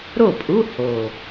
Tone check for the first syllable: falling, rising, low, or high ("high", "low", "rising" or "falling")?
falling